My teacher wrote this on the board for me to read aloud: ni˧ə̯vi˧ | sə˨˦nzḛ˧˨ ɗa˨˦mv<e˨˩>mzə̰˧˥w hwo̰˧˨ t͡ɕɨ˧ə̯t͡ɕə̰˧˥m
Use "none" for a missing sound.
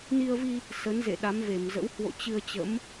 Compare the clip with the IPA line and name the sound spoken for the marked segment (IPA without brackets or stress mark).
e˧˩